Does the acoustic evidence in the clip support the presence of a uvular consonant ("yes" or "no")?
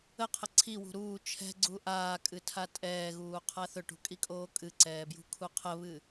yes